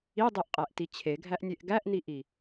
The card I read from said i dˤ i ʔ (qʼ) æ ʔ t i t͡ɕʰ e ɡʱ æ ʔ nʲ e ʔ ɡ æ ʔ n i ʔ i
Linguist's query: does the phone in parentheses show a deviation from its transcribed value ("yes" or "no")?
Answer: no